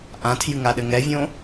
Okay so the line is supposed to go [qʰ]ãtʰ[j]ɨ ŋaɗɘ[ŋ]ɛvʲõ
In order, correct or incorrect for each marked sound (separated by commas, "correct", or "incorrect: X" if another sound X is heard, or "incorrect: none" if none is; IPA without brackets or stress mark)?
incorrect: ʔ, correct, correct